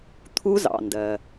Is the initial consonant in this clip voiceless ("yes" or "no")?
yes